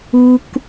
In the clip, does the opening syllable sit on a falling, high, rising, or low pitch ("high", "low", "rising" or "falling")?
high